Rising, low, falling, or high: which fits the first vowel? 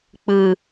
high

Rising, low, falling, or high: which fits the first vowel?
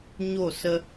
falling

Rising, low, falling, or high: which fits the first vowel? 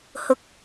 rising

